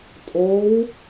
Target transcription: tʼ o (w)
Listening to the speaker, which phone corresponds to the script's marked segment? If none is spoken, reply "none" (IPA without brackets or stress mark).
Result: w